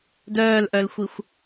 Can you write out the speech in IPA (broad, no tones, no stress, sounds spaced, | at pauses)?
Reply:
d œː l ʔ œ l xʷ i xʷ